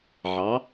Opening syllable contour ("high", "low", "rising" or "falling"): rising